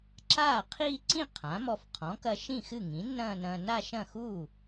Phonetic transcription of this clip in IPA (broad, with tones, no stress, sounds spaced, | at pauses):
ǁ aː˥˩ qʰ iː˥˧ ǀ ĩ˥˩ qʰ ã˩˥ m ɔ˧ f qʰ ɔ̃˩˥ k ɐ˧ ʃ ĩ˥˩ x ɨ˥˩ ŋ ĩ˩˥ nː ɐ̃ː˥˧ n ɐ̃ː˧ n a˥˧ ʃ ɐ̃˥˩ x uː˥˩